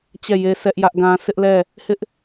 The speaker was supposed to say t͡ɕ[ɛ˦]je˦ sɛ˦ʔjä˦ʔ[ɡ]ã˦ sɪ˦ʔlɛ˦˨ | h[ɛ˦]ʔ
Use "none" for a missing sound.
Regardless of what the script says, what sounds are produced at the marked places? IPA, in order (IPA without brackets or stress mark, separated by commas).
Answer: ɛ˦˨, ɡ, ɪ˦